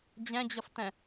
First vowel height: mid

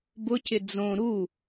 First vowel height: high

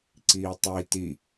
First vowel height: high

